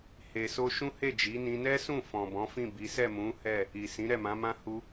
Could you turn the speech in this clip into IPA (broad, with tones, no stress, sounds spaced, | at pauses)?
h e˨ s o˧ ʃ ũ˦ h e˦˨ d͡ʒ i˨˦ n ĩ˧ n ɛ˦ s ũ˦˨ f ɔ̃˨ b ɔ̃˨˦ f ĩ˦˨ b i˨˦ s ɛ˦˨ m ũ˨˦ h ɛ˦˨ | i˨ s ĩ˨˦ ɾ ɛ˦˨ m ã˨˦ m ã˦ h u˧